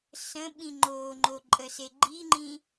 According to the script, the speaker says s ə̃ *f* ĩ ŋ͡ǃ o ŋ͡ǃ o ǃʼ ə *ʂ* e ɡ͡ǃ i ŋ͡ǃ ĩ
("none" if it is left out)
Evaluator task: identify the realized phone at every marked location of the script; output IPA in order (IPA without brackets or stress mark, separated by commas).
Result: ɓ, s